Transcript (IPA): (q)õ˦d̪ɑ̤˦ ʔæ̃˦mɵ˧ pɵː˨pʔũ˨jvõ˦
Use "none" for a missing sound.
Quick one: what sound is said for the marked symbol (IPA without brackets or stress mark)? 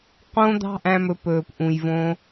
q